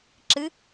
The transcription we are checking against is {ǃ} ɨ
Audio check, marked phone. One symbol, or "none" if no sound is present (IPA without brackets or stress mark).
ǁ